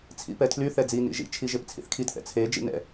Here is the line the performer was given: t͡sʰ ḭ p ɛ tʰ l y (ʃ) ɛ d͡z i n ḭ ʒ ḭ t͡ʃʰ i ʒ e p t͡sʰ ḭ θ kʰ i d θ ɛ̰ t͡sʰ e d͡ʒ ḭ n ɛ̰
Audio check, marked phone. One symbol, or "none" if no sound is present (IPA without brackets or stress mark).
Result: θ